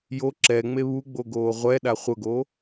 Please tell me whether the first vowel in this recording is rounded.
yes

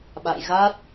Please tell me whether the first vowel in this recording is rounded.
no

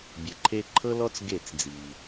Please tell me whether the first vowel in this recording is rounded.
no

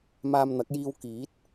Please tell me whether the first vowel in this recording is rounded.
no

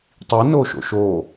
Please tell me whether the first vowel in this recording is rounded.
no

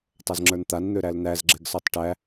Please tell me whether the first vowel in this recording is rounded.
no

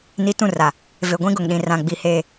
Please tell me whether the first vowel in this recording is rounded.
no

